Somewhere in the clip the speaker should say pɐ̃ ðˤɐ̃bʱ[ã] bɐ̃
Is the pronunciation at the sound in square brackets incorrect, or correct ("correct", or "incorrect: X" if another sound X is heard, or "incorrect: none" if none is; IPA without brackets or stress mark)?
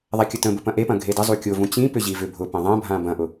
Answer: correct